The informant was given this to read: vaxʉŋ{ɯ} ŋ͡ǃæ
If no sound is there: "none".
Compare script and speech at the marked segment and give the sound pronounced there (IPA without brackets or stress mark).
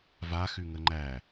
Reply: ə